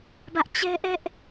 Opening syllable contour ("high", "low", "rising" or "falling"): high